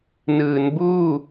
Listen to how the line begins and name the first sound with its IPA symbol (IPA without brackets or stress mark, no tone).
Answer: n